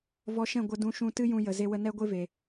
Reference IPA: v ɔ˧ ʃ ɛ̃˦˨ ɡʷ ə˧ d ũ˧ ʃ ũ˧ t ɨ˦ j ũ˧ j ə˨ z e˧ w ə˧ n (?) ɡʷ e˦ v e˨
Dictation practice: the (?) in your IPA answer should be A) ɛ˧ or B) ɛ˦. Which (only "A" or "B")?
B